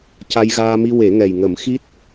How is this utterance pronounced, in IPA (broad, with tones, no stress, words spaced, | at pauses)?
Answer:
ca˧jɣaː˧mi˧ we˨˩˦ŋɛ˨˩jŋə˨˩˦m xi˦˥t̚